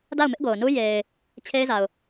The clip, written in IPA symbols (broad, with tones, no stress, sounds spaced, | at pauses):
d a˦˨ ʊ̯ m ɪ˦ ʔ ɡ o˨ ʊ̯ n u˦ j e˨ ɪ̯ | t͡ɕʰ e˦ ɪ̯ z a˨ ʊ̯